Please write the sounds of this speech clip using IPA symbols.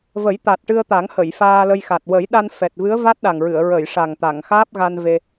və˨˩˦j t̪a˨˩t̚ʈɨ˧ə̯t̪a˨˩˦ŋ hə˨˩˨j faː˧lə˧jxa˨˩t̚ wə˨˩˦jɗa˧n fɛ˨˩t̚vɨ˧˥ə̯ va˦˥t̚ɗa˨˩ŋɹɨ˨˩˨ə̯ ɹə˨˩˨j ʂa˨˩ŋt̪a˨˩˨ŋ xaː˦˥p̚ɣa˧n ve˧

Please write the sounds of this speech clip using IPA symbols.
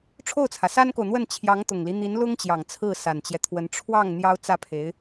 ʈ͡ʂʰo˥˩ʊ̯t͡sʰä˩sa˥nko˨ʊ̯ n̪wə˥˩nt͡ɕʰjɑ˧˥ŋ t̪ʊ˨˩ŋli˦n̪i˧˥n lʊ˥ŋt͡ɕjɑ˨˩ŋ t͡sʰɹ̩˥˩sa˨˩nt͡ɕjɛ˦t̪ʰwə˧˥n ʈ͡ʂʰwɑ˥˩ŋ n̪jɑ˥ʊ̯ t͡sä˥˩pʰe˧˥ɪ̯

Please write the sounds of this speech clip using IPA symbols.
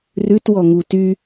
rʉtwɔŋu ty

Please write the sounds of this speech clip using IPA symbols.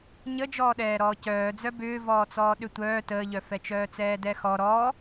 ɲəd͡ʒɔːɗɛː ɾɔːcœːd͡zœ bʏːvɔːt͡sɔː ɗʏtʷœː təːʎœfɛt͡ʃœː t͡sɛːdɛxɔ ɾɔ

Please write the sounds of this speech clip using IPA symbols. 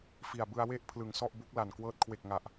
fi˨˩a̯bɯ˧a̯we˥˩ʔpʰlɯ˩˦ŋ sɔ˥˩ʔbu˦˥k̚la˨˩n kwɤː˦˥t̚kʰwe˨˩k̚ŋa˨˩ʔ

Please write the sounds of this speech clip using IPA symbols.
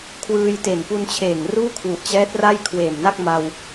kʰwɯː˧jte˨˩n pu˧nt͡ɕʰeː˨˩ŋ ruː˥˩kʰwu˨˩ʔt͡ɕɛː˦˥t̚ ra˥˩jkʰweː˨˩mna˥˩k̚ma˧w

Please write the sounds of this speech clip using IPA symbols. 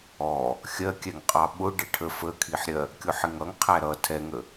ɔ | xʲɜkʲɛŋqʼɑ ɓʊ ɖɪʈʰə fəkʰiħɾʲɜ | kʲʊħɪŋʌŋ qʰæɾʌ tʰɛŋə

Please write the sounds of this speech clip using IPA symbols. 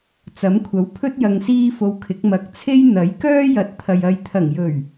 t͡sɐ˨˥mkʷʰɐ˨˥wpʰɵ˥t̚ jɐ˧ŋsiː˥fo˧wkʰɪ˨˥k̚ mɐ˨˥k̚t͡sʰe˥j n̪ɐ˨˥j kœː˥jɐ˨˥t̚t̪ʰɐ˨j ɐ˨jt̪ʰɐ˨˩ŋjɵ˨˩ɥ

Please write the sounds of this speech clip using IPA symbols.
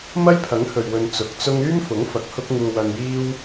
mɐ˥jpʰɐ˨˥ŋhɵ˨ɥwɵ˨n t͡sʊ˨˥k̚t͡sʊ˥ŋ yː˥mfʊ˨˥ŋfɐ˨k̚ hʊ˥k̚ŋuː˧wɐ˧njiː˥w

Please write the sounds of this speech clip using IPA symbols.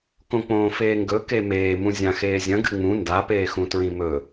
kõk͡põːfeːŋɡɵ kemeː mũzʲãxeːzʲɐ̃ ɡɨŋ͡mũ nda peːxũtɹĩmɵ

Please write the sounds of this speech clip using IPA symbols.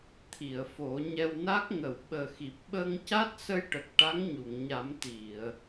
t̪ʰi˨˩˨ə̯ fo˨˩˦ɲɛ˧wna˦˥k̚ ŋə˨˩˨wɓəː˨˩xi˨˩p̚ɓəː˧ŋ ca˦˥t̚sə˧jʈə˨˩k̚ ʈa˧˥ŋɲu˨˩˨ŋɲa˨˩˦mt̪i˨˩˨ə̯

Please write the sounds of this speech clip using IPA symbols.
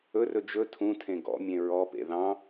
ɵrɵ d͡ʒɵ tʰũtʰẽ ɡɔ̰mʲẽ ɹɔpḛ ðɑ̃

